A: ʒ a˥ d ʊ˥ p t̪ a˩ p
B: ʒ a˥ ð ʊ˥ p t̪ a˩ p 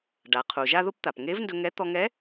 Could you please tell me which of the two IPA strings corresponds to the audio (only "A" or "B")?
B